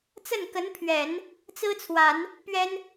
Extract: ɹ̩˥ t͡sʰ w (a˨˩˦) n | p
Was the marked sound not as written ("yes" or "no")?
no